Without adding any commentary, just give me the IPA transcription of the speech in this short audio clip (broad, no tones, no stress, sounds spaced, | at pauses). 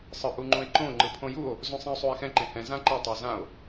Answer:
sˤ ɯ ʔ u ŋ͡ǃ ũ e̯ ǃ õ ŋ͡ǃ ɯ pʰ õ j u o̯ | z ũ sˤ ɛ̃ o̯ sˤ u e̯ x ɛ̃ ǃ ẽ h ɛ̃ z ã ǃ i tˤ o z ã o̯